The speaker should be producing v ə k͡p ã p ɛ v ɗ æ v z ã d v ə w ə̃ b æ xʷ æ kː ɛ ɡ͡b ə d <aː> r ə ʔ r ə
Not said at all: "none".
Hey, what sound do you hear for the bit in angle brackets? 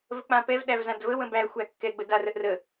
a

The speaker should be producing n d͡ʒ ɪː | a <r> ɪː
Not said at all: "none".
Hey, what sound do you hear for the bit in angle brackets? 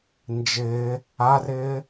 r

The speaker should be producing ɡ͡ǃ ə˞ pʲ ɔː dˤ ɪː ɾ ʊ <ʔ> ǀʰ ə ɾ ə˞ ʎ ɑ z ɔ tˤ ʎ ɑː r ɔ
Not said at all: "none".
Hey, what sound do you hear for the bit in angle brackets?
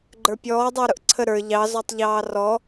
ʔ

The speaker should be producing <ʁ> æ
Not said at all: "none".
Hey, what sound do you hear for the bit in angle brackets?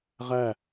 ʁ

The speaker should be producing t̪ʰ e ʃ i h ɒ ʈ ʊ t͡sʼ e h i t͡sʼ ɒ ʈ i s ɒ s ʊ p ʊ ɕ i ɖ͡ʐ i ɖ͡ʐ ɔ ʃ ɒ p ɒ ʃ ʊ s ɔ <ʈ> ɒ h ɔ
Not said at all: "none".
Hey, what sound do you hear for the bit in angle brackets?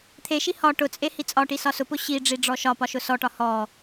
ʈ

